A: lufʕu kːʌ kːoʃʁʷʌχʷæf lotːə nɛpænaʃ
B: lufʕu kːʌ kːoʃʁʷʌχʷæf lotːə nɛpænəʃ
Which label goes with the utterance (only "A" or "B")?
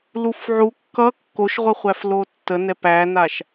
A